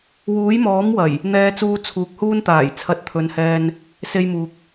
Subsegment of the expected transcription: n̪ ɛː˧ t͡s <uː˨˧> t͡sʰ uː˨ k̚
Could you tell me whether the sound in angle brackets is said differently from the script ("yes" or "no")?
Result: yes